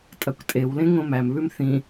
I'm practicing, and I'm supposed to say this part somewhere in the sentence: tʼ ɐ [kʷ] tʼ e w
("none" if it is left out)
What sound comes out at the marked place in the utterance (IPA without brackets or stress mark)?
kʷ